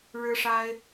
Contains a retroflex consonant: yes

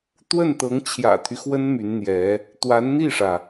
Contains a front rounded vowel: yes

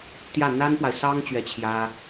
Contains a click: no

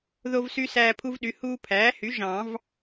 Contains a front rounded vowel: yes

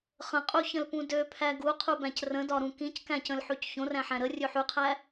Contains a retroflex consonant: no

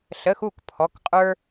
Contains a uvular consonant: yes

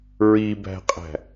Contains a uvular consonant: yes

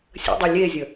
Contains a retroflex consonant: no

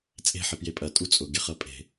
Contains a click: no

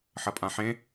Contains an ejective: yes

